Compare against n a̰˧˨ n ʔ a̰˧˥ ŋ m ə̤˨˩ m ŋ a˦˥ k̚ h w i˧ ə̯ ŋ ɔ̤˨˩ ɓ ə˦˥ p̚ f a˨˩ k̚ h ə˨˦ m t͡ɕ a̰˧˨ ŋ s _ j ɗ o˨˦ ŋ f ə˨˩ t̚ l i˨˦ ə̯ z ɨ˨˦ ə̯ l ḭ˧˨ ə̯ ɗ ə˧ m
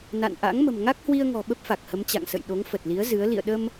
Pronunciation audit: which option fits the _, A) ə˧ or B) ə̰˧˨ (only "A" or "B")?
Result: B